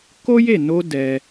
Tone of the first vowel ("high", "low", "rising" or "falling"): high